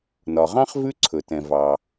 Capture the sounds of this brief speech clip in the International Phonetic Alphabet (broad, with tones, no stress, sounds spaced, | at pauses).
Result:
n ɒ˩ ʁ ɑ̃˥ χ v ʉ˥ ǀʰ ɵ˩ t ɛ̃˩ v ɑ˩